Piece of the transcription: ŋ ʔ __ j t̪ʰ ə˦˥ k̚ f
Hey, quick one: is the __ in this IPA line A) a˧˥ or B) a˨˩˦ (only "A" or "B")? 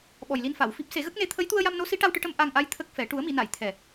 A